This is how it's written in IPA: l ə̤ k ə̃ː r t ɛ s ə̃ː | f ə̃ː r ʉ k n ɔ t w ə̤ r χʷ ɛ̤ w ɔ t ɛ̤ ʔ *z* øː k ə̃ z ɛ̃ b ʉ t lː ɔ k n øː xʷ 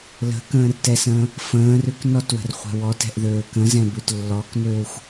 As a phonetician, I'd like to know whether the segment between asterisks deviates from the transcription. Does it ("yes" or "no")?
yes